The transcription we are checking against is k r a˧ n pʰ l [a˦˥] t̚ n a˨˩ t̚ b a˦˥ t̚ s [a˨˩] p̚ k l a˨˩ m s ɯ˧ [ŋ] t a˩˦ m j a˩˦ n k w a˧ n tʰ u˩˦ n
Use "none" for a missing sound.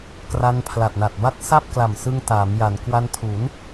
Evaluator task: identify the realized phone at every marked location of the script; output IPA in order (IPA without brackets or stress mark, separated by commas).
a˨˩, a˥˩, ŋ